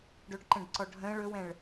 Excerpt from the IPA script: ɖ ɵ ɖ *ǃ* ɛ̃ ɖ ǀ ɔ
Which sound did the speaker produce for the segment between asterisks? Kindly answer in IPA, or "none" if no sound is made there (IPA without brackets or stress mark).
ǃ